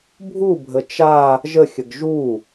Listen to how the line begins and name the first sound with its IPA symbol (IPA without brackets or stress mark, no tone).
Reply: bʱ